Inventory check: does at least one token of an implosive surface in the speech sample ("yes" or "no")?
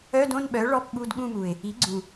yes